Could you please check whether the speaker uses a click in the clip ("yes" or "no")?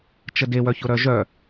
no